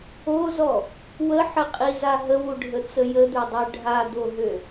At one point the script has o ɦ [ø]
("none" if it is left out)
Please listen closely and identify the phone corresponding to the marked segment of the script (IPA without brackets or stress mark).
ø